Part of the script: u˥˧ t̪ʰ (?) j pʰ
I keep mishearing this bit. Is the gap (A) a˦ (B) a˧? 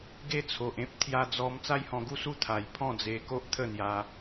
B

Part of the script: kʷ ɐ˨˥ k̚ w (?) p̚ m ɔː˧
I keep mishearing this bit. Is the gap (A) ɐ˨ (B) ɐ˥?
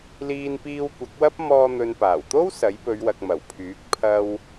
B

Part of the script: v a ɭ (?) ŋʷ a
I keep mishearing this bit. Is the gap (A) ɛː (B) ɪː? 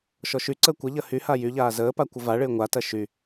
B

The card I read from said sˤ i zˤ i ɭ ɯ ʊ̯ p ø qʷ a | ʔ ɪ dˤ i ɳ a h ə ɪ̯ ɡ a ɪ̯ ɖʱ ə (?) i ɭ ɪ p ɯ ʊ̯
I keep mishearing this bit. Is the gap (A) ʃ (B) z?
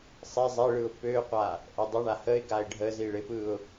B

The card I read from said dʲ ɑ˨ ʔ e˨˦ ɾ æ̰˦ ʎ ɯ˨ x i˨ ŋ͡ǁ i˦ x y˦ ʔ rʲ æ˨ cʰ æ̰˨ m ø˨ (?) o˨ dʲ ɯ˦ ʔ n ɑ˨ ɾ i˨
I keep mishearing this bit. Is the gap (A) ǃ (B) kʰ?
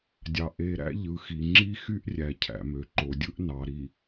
A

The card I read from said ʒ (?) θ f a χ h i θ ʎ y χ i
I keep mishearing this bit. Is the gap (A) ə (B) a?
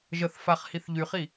A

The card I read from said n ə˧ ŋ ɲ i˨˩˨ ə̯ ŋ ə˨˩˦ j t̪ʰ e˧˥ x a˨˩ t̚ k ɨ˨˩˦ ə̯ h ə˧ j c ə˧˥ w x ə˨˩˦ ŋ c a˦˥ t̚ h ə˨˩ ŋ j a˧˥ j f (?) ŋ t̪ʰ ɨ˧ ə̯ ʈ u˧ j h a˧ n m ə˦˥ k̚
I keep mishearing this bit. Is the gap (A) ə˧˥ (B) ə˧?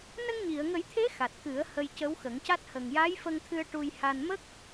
B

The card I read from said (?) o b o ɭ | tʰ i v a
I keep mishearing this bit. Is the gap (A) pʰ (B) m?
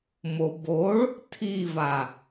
B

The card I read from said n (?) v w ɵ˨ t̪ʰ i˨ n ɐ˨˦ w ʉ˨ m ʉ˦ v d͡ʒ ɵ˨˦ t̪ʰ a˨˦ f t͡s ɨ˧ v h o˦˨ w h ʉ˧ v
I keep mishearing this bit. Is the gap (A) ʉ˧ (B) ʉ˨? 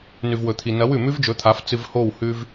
B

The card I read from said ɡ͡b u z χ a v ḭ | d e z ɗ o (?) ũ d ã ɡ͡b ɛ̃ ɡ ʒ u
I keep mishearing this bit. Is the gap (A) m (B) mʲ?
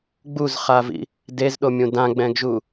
B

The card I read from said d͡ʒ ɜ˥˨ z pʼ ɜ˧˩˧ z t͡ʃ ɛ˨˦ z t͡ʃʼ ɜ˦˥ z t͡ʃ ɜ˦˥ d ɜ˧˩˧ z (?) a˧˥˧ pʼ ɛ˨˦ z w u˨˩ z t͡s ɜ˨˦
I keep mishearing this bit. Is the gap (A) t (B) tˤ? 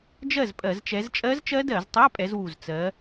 B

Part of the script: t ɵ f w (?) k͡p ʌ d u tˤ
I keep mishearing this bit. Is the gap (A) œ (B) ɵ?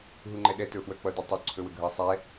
A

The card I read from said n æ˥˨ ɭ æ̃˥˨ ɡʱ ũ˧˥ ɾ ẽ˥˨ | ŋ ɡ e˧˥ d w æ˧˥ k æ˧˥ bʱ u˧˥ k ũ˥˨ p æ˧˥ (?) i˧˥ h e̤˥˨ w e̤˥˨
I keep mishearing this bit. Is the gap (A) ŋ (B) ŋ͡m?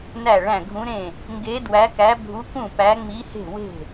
B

